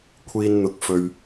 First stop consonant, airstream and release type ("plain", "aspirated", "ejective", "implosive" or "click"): aspirated